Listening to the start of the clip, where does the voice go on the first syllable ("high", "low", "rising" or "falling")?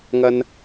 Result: high